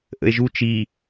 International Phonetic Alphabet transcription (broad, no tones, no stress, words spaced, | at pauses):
ʔə̰e̯ʒu t͡ʃi